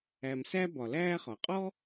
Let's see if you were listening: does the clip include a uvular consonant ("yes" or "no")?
yes